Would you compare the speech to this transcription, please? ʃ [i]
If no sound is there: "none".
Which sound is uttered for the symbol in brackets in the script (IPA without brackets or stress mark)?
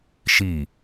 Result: i